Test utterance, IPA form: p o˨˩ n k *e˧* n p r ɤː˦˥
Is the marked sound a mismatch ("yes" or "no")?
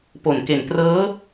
yes